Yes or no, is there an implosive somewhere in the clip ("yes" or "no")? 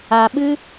yes